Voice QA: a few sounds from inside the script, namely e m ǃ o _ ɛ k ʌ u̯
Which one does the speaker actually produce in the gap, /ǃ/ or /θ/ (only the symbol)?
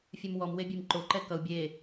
ǃ